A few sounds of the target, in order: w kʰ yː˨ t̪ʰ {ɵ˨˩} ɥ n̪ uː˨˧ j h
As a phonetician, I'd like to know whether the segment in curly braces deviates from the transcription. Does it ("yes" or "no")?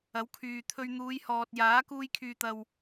yes